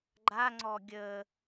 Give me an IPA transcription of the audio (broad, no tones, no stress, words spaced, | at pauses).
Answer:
ɡ͡ǃaŋ͡ǀɔ ɡʲə